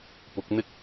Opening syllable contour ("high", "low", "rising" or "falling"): rising